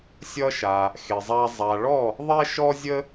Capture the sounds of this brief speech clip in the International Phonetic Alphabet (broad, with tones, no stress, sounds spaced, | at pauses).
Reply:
sʲ ʌ˧ ʃ a˩ | x e˩ zˤ a˧ zˤ a˩ ɭ ɔ˥˩ | ðˤ ɛ˥ ʃ ɔ˥ zʲ ə˥